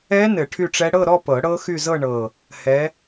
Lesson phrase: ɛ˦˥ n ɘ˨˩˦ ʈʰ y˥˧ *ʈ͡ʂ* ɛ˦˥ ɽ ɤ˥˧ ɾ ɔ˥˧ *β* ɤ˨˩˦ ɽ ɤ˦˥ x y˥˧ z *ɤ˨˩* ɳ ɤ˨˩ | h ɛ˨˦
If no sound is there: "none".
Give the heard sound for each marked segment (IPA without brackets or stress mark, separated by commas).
ʈ͡ʂ, p, ɤ˥˧